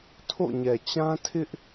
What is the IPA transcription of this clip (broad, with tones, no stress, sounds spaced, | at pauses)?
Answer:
tʰ o̰˦˨ ɲ ɛ˨ t͡ɕ ã˦ tʰ ɪ˦ ʔ